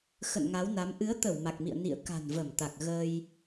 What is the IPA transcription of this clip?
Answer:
x ə̰˧˨ n ŋ a˨˦ w n a˨˦ m ʔ ɨ˨˦ ə̯ t̪ ə˧˩ w m a˨˩ k̚ m ḭ˧˨ ə̯ n ḭ˧˨ ə̯ k a̤˨˩ n v ə˧˩ m t̪ a˨˩ k̚ ɣ əː˧ j

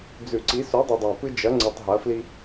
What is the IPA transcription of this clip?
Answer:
d͡z ʉ˨˩˦ ǀ i˨˦ s u˨˦ dˤ ʉ˨ dˤ a˨ p ɨ˦ d͡ʒ ɐ˨˦ ŋ͡ǀ ɨ˨ tˤ ɦ ɐ˨˦ f l i˦

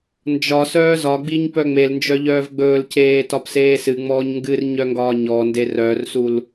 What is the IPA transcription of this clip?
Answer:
n d͡ʒ ɒ s œː z ɒ ɡ͡b i ɲ p œ ŋ͡m e l n d͡ʒ œ ʎ œː v ɡ͡b ɵː l c eː t ɒ p s eː s ɨ ŋ͡m ɔː ɲ ŋ ɡ ɨ r ɲ œ ŋ ɡ ɒː ɲ ɔ n d e r œ r s u l

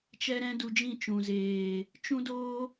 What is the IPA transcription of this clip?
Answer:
t͡ʃ ɛ˦ ɾ ɛ̃˦ d u˧ d͡ʒ ĩ˦˨ t͡ʃ ũ˨ z eː˨ | t͡ʃ ũ˦ d oː˦

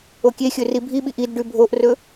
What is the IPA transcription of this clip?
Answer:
o kʲ e xʲ ɵ r i bʱ i ɓ i ʔ i d ɖ ʉ bʱ o ʔ r ɵ

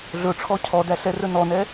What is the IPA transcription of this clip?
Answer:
ɮ ɵ ʈ͡ʂʰ ɔ cʰ ɔ d æ ɬ ɛ r ɵ n ɔ n ɛ

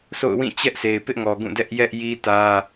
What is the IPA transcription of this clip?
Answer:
s o̰˦˨ ʊ̯ w ĩ˦˨ t͡ɕ ɛ˦ ʔ s e˨ ɪ̯ p ɪ˦ ʔ ŋ ɔ˨ ɡ ũ˦˨ d ɛ˦ ʔ j ɛ˦ ʔ j i˦ t ä˦

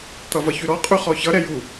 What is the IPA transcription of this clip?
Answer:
t̪ ʌ v ʌ ç ʉ ɾ ɔ qʼ ʉ χ ɔ ç ʌ ɾ ɛ j u

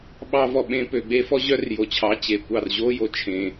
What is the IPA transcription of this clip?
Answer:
ɓ ɑ˧ v ɔ˨ ɓ ẽ˧ p ø˨ ɡ͡b e˦ f ɔ˦ ʑ œ˦ r j o˨ t͡ɕʰ ɑ˨˦ t͡ɕ e˨ kʷ ɑ˦˨ r ʑ o˦ j o˨ t͡ʃʰ ẽ˧

